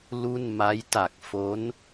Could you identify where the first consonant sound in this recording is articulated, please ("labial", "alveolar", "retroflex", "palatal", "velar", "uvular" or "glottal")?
alveolar